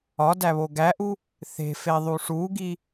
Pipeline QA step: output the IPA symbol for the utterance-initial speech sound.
ɒ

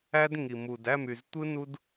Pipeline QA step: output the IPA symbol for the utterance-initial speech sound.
æ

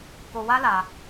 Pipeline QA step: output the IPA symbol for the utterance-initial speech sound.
k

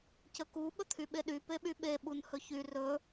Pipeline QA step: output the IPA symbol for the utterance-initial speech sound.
c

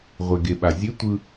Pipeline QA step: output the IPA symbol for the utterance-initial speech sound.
ʁʷ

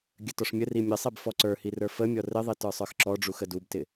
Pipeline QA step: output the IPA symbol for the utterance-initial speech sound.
ɡʲ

